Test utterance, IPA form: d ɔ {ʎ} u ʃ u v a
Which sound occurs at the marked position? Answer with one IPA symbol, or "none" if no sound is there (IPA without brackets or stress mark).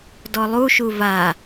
lˠ